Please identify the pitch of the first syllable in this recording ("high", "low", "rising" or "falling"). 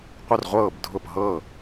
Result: falling